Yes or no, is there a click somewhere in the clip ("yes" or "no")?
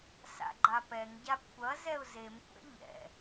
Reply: yes